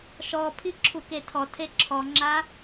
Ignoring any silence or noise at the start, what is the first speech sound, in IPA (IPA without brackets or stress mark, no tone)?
ʃ